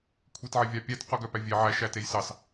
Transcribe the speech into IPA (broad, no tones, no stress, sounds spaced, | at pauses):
kʷʰ e t ʕ e vʲ ɑ pʲ æ t q u ɡ œ p æ vʲ e ʕ æ ʃ æ t e j s ɑ s